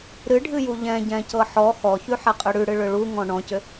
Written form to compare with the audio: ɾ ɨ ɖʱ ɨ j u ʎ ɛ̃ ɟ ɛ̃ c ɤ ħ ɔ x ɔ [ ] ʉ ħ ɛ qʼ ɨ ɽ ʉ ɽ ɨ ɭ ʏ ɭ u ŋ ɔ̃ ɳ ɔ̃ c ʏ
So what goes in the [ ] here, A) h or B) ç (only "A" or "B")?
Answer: B